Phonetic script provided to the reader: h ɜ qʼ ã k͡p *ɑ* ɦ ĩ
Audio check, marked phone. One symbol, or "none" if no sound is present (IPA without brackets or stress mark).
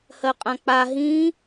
a